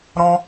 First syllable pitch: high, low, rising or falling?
high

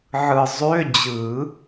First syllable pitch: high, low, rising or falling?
low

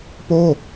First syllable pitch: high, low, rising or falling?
falling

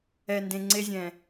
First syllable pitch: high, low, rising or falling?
low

